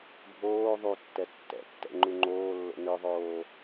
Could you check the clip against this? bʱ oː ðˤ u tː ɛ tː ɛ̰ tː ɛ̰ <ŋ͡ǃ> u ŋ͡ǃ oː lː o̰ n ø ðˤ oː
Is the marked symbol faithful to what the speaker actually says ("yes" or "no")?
yes